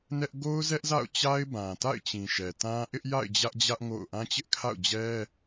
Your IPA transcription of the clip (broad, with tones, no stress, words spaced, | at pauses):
nɛ˦ʔ ɡo˦ʊ̯zɛ˦ʔza̰˦˨ʊ̯t͡ɕa˦ɪ̯ bã˨ta̰˦˨ɪ̯t͡ɕĩ˨ ʃɛ˨tã˦ ʔɪ˦ʔja̰˦˨ɪ̯ d͡ʑä˦ʔd͡ʑä˦ʔ ŋo̰˦˨ʊ̯ ʔã˦t͡ɕɪ˦ʔkʰa̰˦˨ʊ̯d͡ʑɛ˦